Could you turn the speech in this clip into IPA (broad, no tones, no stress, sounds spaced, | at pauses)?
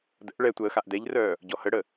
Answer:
d ə̰ ʔ ɭ ɛ tʷ əː x a ʔ d ɛ ʎ r œː | ɟ ɔ h ə ɽ ə